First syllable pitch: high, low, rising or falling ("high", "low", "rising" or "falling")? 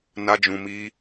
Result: high